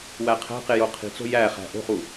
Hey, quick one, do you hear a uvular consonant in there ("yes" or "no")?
yes